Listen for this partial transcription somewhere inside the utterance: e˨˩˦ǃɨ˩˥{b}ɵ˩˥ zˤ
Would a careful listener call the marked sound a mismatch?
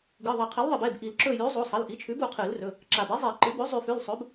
no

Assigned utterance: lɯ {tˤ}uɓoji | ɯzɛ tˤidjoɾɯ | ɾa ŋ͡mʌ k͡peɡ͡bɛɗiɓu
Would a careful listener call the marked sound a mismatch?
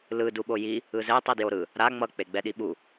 yes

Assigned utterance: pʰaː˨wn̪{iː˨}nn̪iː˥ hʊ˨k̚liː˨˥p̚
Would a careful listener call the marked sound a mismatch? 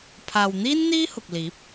yes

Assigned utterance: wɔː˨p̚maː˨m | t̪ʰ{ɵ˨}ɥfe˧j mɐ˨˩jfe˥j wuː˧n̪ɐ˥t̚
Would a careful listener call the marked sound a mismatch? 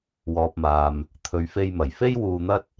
yes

